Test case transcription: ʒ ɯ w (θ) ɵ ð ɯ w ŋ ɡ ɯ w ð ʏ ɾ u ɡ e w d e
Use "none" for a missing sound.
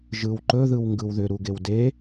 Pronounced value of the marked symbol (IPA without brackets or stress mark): ǃ